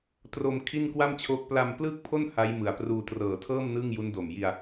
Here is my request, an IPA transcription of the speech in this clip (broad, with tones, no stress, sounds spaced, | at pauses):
t r o˧ m kʰ i˥˩ n k w a˥˩ m t͡ɕʰ oː˦˥ k̚ p l a˧ m p l ɯː˥˩ k̚ pʰ o˥˩ n h a˦˥ j m ɯ˨˩ a̯ p r uː˧ t r ɤː˨˩ tʰ ɤː˥˩ m n ɯ˥˩ ŋ j u˦˥ n d o˨˩ m j i˧ a̯